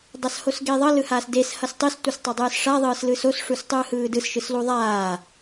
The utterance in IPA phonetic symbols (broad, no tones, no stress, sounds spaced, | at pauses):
dˤ a s h o s ɡ e ðˤ ʌ l ɯ h aː s d e s h ʌ s tˤ e s tʷ ʌ s tˤ ʌ dˤ ɯː s ʂ a ðˤ ɯː s l ɯ s o s ʂ u s tˤ ɯː h ɯː d ɯ s ʃ ɯ s l u ðˤ aː